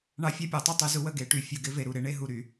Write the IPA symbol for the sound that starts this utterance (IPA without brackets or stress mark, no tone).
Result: ɳ